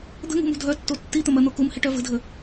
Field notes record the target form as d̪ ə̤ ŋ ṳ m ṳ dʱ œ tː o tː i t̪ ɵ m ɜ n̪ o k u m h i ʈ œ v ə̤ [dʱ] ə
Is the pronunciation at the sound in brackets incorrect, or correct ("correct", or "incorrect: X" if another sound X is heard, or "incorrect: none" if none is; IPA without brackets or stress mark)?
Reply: correct